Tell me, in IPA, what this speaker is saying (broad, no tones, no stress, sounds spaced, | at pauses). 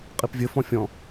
qʼ i p vʲ ɘ f ɔ̃ fʲ ɔ̃